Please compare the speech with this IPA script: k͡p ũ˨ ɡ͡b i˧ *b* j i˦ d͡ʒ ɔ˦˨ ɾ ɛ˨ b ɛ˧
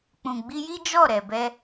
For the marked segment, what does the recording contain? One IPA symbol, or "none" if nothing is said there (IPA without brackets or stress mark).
none